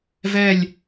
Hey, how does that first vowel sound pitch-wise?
falling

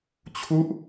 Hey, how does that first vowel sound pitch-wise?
falling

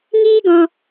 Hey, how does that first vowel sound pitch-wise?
high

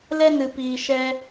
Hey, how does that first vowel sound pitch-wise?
high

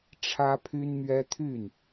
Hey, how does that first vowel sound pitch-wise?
high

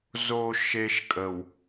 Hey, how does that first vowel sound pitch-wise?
low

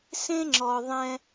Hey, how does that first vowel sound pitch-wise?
high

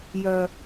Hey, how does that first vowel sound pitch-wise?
low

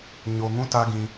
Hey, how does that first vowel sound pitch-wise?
low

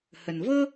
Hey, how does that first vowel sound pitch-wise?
low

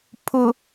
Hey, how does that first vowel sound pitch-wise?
low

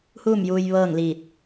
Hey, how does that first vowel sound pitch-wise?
falling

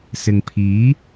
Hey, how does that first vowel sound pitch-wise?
low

